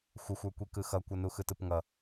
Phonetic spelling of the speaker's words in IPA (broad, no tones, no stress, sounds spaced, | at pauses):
xʷ ə xʷ ə˞ kʷ i k ɯ x ʌ kʷ ʌ n u x ɯ t ɯ p ŋ ʌ